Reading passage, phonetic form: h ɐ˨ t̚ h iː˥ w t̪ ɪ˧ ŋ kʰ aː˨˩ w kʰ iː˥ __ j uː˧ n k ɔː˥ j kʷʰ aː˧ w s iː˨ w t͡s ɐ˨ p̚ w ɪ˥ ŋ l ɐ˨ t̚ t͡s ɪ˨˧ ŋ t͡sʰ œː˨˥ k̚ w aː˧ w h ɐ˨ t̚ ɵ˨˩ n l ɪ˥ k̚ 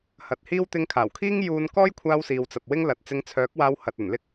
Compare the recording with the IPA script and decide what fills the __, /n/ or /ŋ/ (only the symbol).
ŋ